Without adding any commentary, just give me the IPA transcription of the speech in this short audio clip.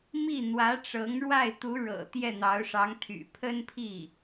mi˥˩n̪wä˧˥ʈ͡ʂɤ˧˥ŋɻwa˥˩ɪ̯ t̪u˧˥ɻɤ̰˨˩ t̪jɛ˥˩n̪ɑ˧˥ʊ̯ʂɑ˧˥ŋt̪ʰy̰˨˩ pʰə˥npʰi˥˩

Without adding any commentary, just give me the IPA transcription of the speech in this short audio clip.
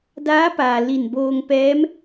daː˧˥paː˩ li˧˩nboː˧ŋ pɛː˧˥m

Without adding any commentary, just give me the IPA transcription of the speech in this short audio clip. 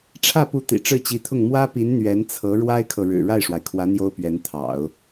ʈ͡ʂʰä˥˩pu˧˥ t̪ḭ˨˩ʈ͡ʂɻ̩˥˩t͡ɕi˧˥t̪ʰʊ˥˩ŋ mwä˥pi˧˥n n̪ɥɛ˧˥nt͡sʰɤ˧˥ ɻwa˥ɪ̯kʰɤ˨ɻɻ̩˨˩ ɻa˥˩ɪ̯ʂwa˩ɪ̯kʰwä˧˥ n̪jo˥ʊ̯pɥɛ˧˥nt̪ʰɑ̰˨˩˦ʊ̯

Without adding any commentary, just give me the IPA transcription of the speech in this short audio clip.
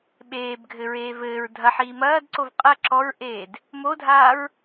ɓeːbɡʱɘɹeː vɘːɹ dʱɐħiː mɐːdǀov qʼɐ ǁɔɹʔeːd | modʱaːɹ

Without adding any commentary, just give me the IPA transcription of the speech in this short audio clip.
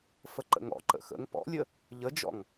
fəǃə̰ŋɔ̰ ǃə̰xə̰ŋ pɔ̰lʲə | ʎəd͡ʒɔ̰ŋ

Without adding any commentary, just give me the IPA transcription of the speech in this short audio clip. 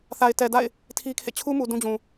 θa˨ɪ̯tɛ˨da̰˦˨ɪ̯ | tʰi˦kʰḛ˦˨ t͡ɕʰu˦mu˨ dũ˦d͡ʑũ˨

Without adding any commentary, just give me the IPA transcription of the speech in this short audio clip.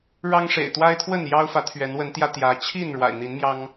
ɻɑ˦ŋʂḛ˨˩ɪ̯ t̪wa˦ɪ̯t̪ʰwə˥˨n jɑ˦ʊ̯fä˨˦ t̪ʰɥɛ˨˦nwə˨˦nt̪jä˧ t̪jä˨˦ t͡ɕʰi˥˨n ɻwa̰˨˩ɪ̯n̪i˨˦nmjɑ˦ŋ

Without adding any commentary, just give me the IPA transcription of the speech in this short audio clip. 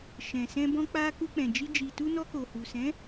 ʃɛ̃˨sɛ̃˧bɔ̃˧ k͡pa˧ ku˧k͡pɛ̃˨d͡ʒi˧ d͡ʒi˨tu˧nɔ˧ko˨ hu˨sɛ̃˨˦

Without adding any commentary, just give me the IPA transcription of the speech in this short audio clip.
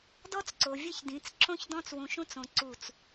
dɔ˦t͡sǀo˨vʲɘ˦çdĩ˨˦t͡s ǁõ˦ç dɔ̃˦t͡swũ˨ʃũ˦t͡sõ˨ ǀu˦˨t͡s

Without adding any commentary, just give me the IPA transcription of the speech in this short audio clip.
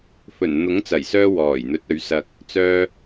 fɵ˨˩nn̪ʊ˨˥ŋt͡sɐ˨˩jsœː˧ wɔː˨˩jn̪ɵ˨˥t̚ɵ˨˥ɥsɐ˧k̚ | t͡sœː˧

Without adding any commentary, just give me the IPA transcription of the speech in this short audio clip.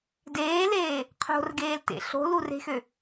deːleː | qʰo̤rɡeːltḛ ɬo̤lure̤xø

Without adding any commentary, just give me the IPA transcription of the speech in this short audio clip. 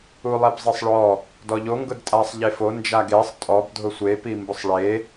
ulˠɛbzˤisˤɭɔ | dɔʎo ŋɡʊdtʼasˤ ʎefo nd͡ʒaɡesˤ tʼɔb dʱʊsʷe pimbʊsˤɭe

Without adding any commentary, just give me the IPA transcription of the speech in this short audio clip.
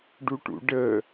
ɖuʈṵɖə

